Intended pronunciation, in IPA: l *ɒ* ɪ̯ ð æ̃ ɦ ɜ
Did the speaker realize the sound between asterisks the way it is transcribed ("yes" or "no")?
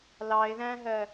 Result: no